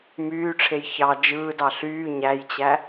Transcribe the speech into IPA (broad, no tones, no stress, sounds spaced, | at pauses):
m yː ʈ͡ʂʰ e j ç ɑ d͡ʒ ɯː d ɑ ɬ yː ɲ æ j t͡ɕ æ